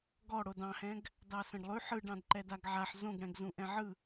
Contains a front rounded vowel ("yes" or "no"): no